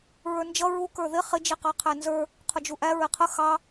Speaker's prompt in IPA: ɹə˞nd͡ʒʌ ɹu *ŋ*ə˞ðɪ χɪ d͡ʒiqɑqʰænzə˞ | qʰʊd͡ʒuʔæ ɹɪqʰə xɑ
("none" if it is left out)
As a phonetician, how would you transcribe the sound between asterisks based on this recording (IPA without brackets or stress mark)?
k